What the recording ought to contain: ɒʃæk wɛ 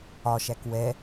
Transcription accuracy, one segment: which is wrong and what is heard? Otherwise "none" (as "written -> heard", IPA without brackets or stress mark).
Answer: none